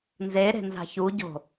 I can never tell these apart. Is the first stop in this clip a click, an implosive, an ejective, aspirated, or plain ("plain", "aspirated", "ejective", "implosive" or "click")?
plain